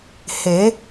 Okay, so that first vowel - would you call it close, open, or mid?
mid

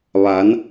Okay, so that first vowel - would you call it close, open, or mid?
open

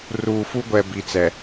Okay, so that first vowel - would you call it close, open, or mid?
close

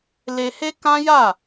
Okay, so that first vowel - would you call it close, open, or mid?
mid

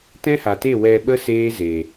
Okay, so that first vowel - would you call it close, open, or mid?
mid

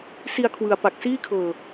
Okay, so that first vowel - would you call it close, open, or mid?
close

